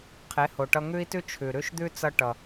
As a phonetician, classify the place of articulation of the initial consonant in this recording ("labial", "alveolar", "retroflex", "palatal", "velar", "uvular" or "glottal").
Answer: uvular